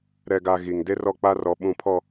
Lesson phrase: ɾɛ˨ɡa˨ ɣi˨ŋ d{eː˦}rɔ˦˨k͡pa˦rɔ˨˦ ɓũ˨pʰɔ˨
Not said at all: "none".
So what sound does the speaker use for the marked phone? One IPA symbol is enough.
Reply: e˦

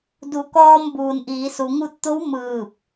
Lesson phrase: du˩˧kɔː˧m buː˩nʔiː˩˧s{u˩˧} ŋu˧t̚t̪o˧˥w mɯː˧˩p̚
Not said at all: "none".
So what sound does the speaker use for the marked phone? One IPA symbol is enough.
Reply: u˩˧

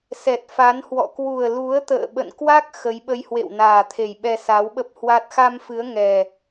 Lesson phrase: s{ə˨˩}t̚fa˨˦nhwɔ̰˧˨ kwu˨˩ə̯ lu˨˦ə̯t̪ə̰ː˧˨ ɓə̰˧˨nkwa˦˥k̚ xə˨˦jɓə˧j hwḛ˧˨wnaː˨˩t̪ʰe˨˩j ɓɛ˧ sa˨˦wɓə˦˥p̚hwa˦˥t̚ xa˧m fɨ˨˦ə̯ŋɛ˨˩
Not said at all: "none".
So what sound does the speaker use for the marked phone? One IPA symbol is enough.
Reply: ɛ˨˩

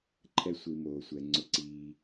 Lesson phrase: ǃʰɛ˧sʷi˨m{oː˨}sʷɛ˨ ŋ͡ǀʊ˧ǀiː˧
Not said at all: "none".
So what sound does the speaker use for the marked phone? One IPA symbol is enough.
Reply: oː˨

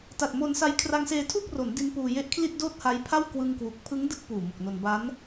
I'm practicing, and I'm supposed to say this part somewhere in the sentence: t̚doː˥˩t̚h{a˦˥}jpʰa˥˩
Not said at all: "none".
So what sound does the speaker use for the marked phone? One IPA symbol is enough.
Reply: a˦˥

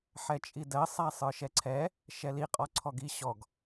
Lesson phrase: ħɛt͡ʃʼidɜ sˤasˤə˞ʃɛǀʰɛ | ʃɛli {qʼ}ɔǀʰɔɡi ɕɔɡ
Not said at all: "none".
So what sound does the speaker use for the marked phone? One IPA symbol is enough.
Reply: qʼ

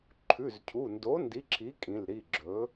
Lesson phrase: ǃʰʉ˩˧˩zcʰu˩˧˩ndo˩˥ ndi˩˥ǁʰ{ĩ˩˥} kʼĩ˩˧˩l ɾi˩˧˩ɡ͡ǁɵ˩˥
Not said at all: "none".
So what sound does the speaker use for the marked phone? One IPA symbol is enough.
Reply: i˩˥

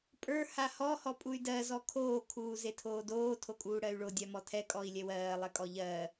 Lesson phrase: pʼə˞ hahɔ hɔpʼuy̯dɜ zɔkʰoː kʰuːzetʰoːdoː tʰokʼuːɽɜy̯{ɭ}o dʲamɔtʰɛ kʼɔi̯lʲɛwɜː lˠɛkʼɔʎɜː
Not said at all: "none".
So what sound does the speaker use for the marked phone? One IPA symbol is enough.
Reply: ɭ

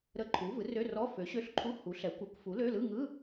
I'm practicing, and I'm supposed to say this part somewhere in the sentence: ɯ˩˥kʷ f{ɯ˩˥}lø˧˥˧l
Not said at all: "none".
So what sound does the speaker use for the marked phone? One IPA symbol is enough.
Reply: u˩˥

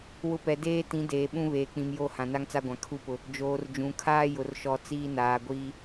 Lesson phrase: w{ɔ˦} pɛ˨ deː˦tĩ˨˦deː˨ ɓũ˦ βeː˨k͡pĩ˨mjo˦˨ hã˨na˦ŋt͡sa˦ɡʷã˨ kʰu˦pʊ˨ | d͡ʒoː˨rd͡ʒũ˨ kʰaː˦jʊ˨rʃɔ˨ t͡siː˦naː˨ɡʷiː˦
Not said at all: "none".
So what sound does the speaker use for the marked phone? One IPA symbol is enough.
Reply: ʊ˦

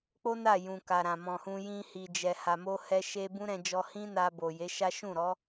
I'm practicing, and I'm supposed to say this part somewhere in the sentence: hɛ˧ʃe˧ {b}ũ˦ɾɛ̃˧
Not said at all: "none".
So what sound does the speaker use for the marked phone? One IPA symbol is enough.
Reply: b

